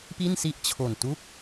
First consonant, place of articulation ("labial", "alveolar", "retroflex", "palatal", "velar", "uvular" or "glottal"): labial